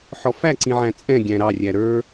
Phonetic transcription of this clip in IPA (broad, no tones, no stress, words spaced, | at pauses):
ħɔfæǀĩʕæ̃ t͡sʼɛ̃ ɡʲæ̃ɾɑrʲæ ɾə˞